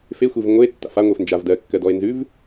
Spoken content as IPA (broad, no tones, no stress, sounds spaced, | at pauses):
f e xʷ e v ŋʷ e tː a̰ f a ŋʷ e f n d͡ʒ a v d ɜ kː ɜ d ɔ e̯ n z ʉ v